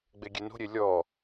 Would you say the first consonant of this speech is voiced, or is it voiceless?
voiced